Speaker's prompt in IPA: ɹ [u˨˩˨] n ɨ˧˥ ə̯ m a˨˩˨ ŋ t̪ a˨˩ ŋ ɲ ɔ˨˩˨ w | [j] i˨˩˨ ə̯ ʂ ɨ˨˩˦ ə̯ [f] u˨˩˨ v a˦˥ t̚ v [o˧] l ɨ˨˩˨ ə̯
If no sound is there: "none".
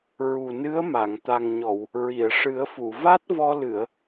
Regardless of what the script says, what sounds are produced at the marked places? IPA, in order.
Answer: u˨˩, ɹ, f, ɔ˧

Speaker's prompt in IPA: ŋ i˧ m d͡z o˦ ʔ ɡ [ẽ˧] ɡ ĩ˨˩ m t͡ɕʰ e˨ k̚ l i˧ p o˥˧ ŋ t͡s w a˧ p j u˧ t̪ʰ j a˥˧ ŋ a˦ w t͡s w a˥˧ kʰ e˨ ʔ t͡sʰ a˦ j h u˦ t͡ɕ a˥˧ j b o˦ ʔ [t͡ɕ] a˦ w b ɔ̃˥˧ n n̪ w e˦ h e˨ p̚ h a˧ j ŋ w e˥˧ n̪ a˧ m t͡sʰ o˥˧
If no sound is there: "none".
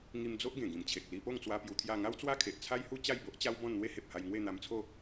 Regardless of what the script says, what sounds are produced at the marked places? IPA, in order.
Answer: ẽ˨˩, t͡ɕ

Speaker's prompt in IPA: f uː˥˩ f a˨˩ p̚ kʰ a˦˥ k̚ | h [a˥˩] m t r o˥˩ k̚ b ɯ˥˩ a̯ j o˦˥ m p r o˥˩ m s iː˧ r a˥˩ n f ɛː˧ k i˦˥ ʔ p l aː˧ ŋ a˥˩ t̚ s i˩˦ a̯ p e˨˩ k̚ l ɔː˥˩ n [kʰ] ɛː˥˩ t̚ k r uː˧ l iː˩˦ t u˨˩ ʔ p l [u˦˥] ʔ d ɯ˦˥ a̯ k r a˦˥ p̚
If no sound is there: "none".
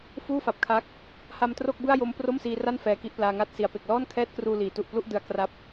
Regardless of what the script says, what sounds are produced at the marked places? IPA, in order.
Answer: a˧, kʰ, u˥˩

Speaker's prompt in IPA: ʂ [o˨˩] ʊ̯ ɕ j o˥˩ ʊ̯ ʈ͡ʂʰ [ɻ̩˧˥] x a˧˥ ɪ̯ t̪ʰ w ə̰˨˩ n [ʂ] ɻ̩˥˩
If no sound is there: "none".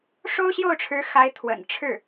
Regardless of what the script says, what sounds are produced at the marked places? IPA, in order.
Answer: o˥, ɻ̩˧˥, ʈ͡ʂʰ

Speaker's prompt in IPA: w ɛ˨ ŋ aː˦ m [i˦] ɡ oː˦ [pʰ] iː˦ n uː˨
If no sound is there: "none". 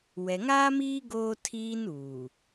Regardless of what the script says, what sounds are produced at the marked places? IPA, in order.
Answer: iː˦, tʰ

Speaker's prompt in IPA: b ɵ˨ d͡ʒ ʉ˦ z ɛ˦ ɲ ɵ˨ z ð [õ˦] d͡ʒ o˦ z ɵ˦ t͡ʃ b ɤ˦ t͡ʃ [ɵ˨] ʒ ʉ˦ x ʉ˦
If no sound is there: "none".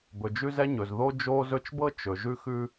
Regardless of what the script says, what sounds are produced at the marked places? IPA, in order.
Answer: o˦, ɵ˨

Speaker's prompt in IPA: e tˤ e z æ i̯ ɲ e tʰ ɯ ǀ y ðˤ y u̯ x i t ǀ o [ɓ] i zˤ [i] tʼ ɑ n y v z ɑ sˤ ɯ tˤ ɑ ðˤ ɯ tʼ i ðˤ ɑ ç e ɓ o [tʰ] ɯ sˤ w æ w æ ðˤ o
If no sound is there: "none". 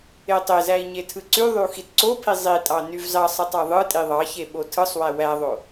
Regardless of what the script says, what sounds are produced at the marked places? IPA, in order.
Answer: pʰ, i, tʰ

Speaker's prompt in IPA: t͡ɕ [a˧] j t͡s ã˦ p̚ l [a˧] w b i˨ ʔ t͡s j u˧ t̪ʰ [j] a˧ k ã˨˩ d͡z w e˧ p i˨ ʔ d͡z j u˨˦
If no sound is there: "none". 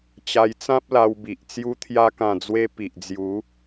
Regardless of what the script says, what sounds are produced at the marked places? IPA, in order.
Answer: a˧, a˧, j

